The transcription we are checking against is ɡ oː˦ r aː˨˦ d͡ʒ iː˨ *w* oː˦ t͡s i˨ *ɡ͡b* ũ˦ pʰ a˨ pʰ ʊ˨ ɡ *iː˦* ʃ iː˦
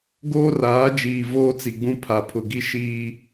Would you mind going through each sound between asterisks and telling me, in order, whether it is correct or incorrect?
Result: incorrect: v, correct, incorrect: i˦

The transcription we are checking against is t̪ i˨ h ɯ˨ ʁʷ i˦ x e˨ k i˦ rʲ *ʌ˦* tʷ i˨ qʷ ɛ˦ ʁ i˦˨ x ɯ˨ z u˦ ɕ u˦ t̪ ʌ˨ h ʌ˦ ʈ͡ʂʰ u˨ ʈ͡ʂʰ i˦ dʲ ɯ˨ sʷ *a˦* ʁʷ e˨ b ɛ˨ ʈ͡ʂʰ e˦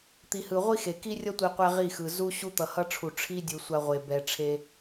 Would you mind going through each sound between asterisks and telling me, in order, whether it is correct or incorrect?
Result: correct, correct

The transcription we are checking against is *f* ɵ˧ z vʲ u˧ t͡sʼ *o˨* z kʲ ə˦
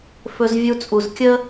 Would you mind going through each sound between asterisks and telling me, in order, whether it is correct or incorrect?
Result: correct, incorrect: u˨

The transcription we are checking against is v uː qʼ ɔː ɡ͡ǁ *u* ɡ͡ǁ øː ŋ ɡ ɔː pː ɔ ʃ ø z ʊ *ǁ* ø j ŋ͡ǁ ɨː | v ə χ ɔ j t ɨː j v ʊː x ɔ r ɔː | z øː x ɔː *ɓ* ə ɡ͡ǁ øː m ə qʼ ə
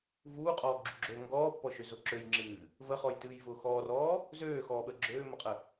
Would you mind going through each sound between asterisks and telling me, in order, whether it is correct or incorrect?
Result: correct, correct, correct

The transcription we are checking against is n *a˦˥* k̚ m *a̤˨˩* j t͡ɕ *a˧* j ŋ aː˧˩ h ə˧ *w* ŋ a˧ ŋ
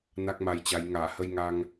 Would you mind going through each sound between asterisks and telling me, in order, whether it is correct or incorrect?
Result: correct, incorrect: a˧, incorrect: a˨˦, incorrect: j

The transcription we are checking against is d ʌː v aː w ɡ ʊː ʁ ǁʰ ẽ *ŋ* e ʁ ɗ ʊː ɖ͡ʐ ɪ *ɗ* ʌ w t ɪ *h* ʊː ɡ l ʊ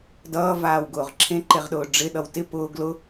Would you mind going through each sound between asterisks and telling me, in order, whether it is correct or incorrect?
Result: incorrect: ǃ, correct, incorrect: p

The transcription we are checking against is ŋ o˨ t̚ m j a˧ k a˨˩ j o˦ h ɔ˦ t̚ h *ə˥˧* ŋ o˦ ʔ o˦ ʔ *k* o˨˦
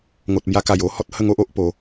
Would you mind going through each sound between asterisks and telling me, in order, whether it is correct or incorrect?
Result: correct, incorrect: p

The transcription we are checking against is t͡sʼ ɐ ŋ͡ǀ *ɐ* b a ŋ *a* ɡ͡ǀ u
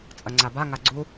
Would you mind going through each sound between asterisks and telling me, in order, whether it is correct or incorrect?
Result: incorrect: a, correct

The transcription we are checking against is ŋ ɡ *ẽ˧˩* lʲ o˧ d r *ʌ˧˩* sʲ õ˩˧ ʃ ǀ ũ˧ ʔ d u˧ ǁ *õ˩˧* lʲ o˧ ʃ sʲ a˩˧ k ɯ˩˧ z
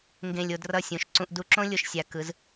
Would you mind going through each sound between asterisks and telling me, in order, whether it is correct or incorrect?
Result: correct, correct, incorrect: õ˥

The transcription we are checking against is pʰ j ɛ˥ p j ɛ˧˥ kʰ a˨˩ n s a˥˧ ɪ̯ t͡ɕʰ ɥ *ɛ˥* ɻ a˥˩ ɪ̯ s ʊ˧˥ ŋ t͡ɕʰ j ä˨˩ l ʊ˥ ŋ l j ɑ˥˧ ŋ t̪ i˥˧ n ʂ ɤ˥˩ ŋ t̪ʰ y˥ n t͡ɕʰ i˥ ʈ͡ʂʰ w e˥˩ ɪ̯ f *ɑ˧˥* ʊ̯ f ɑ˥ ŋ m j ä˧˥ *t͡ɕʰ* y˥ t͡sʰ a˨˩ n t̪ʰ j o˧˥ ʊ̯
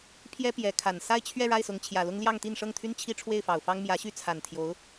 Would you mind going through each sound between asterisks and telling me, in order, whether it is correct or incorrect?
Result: incorrect: ɛ˥˧, incorrect: ɑ˨˩, incorrect: ɕ

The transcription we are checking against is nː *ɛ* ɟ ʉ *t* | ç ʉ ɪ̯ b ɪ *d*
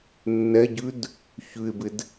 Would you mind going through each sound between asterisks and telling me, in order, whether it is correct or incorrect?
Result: correct, incorrect: d, correct

